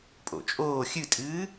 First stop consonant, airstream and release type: ejective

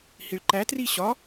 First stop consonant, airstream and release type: click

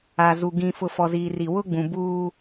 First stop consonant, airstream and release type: plain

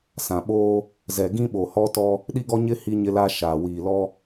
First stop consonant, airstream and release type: implosive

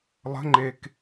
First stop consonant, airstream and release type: click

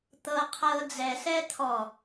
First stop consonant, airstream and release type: plain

